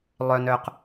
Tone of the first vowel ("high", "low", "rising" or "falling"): low